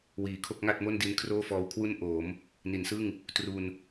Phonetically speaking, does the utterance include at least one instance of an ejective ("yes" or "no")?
no